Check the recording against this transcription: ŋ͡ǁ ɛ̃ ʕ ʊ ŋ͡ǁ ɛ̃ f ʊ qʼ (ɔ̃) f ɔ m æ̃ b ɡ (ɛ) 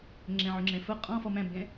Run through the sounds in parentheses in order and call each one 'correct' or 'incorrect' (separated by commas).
correct, incorrect